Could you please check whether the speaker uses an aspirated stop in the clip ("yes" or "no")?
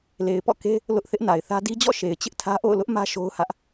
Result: yes